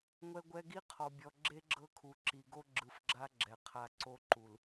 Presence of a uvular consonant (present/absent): present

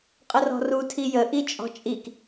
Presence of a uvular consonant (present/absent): present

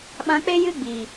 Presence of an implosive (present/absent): present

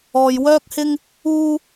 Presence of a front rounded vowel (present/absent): present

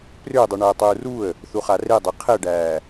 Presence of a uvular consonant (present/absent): present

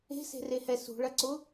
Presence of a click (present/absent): present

